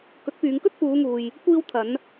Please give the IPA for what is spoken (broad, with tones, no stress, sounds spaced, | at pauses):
k ɵ˨˥ t̚ p yː˨˧ ŋ k ɵ˥ t̚ p uː˨˧ ŋ uː˨ j | kʷ iː˧ w t̪ʰ ɐ˨˧ n